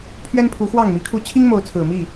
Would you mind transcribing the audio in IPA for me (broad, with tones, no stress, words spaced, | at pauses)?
pʰɥɛ˦npʰu˨˦ xwɑ˥˨ŋmi˨˦kʰu˥˨ t͡ɕʰi˦ŋmo˨˦ʊ̯ t͡sʰɹ̩˨˩mi˥˨